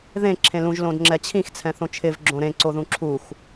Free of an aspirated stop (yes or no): no